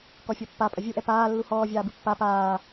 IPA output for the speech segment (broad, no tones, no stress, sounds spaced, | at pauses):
k ɔ fʲ ɔ pː a pʼ ɐ vʲ u ʔ ɛ p aː lː u h ɔː vʲ aː b ɨ pː a p aː